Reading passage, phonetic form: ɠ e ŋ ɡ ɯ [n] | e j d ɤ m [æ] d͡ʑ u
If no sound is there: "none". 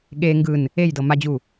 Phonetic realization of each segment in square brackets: n, a

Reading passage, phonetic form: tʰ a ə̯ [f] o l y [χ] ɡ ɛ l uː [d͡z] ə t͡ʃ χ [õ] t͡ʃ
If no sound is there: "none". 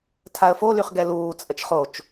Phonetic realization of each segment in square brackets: f, χ, t͡sʼ, o

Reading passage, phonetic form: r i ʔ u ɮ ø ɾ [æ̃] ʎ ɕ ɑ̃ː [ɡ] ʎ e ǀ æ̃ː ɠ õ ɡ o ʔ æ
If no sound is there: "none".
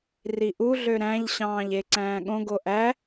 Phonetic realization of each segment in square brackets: æ̃, none

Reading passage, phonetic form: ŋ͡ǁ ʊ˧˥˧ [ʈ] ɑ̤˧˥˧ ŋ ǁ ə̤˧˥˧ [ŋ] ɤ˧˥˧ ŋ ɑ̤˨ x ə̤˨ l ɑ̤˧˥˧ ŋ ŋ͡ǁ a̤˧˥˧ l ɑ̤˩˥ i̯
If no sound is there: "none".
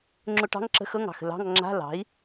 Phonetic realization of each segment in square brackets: ʈ, x

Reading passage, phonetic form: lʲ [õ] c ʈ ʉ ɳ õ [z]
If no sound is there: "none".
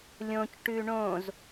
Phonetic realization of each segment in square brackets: õ, z

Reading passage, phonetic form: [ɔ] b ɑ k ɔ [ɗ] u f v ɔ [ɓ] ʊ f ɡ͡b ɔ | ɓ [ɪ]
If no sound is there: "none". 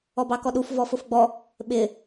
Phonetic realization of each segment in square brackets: ɔ, ɗ, f, ɪ

